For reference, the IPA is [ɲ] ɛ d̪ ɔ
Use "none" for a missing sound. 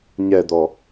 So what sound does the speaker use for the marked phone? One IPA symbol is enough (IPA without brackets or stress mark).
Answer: ɲ